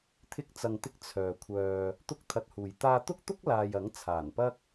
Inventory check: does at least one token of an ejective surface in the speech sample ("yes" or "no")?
no